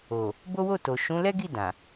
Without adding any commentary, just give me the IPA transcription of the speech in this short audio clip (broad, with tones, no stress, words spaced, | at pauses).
o˨ | bo˦wo˦˨to˨ ʃũ˨˦lɛ˦ɡi˦˨ dã˨